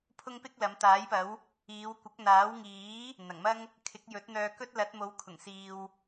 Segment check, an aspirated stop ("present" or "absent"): present